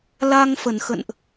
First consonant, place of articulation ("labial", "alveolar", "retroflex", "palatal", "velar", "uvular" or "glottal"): alveolar